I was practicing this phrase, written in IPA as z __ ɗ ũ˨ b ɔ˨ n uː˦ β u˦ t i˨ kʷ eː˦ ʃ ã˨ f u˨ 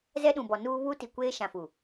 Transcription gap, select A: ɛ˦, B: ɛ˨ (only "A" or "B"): A